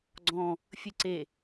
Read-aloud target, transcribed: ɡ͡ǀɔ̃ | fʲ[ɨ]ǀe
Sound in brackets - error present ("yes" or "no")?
no